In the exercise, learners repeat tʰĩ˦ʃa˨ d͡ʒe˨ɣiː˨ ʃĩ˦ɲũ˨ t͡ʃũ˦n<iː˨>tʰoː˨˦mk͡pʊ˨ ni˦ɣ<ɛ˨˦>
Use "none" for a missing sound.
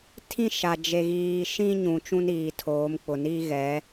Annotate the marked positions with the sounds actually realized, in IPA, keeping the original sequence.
iː˨, ɛ˨˦

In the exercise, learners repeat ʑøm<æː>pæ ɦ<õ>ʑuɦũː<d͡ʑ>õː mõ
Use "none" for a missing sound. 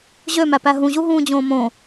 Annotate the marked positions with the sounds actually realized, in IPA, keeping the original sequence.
æ, ũ, d͡ʑ

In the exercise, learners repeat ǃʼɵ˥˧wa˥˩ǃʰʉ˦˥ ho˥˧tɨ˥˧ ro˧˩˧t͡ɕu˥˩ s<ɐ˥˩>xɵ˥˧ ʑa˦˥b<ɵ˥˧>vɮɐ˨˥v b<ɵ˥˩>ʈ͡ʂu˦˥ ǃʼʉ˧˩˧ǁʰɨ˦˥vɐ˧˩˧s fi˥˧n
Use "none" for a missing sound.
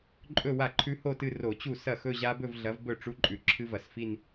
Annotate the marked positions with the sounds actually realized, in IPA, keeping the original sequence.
ɐ˥˩, ɵ˥˧, ɵ˥˩

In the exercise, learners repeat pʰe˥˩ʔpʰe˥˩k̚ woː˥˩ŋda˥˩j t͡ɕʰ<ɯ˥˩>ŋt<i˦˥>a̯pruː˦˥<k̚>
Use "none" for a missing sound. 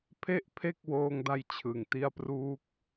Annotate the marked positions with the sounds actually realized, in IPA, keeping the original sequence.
ɯ˨˩, i˦˥, k̚

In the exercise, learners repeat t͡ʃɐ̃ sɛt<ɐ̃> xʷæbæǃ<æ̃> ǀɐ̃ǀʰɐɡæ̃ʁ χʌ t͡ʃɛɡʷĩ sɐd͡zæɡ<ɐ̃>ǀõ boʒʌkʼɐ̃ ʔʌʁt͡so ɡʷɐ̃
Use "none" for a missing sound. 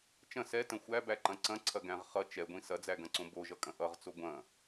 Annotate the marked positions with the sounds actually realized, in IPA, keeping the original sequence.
ɐ̃, ɐ̃, ɐ̃

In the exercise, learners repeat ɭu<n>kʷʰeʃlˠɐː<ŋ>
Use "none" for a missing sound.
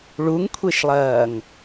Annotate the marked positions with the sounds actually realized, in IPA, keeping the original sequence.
ŋ, ŋ

